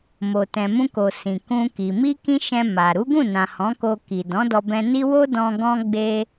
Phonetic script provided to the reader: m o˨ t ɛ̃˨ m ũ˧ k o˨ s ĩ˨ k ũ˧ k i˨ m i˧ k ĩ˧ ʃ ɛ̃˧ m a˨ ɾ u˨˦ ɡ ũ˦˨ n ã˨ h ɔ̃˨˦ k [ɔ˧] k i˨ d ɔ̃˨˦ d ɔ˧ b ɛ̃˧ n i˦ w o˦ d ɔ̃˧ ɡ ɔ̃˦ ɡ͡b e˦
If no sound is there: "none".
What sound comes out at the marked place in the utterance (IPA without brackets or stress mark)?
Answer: o˧